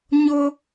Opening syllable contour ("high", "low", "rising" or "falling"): high